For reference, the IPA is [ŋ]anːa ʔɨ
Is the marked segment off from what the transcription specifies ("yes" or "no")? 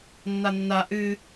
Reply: yes